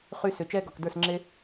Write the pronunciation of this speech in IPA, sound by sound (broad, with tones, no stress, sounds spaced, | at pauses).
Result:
χ y˧ s ʏ˨ t͡ʃ ɛː˦ ɡ ɔ˨ k d ə˞˦˨ s ŋ͡ǁ e˦